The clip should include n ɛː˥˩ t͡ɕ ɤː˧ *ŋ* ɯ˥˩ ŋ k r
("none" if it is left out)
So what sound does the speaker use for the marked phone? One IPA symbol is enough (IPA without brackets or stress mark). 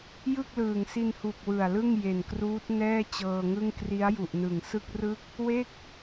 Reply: ŋ